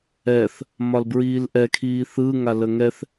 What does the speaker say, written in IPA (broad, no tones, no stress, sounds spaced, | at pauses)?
ɛ θ | m ɒ l b ɹ iː l ʔ ɛ kʰ iː θ ɯ ŋ a l ə ŋ ɛ θ